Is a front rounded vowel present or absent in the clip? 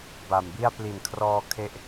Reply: absent